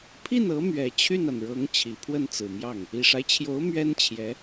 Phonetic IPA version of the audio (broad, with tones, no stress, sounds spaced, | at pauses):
pʰ i˥˩ n ɤ˧˥ m ɥ ɛ˨˩ t͡ɕʰ y˥˩ n a˩ n ɻ ɤ˧˥ ŋ t͡ɕʰ i˨˩ pʰ w ə˥˩ n t͡s ɹ̩˨˩ m j ɑ˥˩ ŋ | i˨˩ ʂ a˦ ɪ̯ t͡ɕʰ j o˧˥ ʊ̯ m ɥ ɛ˥ n t͡ɕʰ j ɛ˧˥